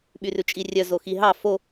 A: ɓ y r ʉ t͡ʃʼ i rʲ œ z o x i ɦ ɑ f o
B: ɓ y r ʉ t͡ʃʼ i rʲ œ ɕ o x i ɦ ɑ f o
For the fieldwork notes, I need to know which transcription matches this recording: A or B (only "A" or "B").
A